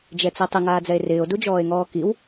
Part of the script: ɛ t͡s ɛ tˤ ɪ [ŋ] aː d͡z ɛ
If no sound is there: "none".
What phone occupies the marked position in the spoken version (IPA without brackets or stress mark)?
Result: ŋ